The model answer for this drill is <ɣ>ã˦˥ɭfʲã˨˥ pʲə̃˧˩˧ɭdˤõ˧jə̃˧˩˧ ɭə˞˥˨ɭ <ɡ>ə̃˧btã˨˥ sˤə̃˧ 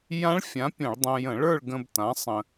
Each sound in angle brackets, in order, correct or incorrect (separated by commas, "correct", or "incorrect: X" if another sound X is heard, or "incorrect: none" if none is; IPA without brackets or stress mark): incorrect: j, correct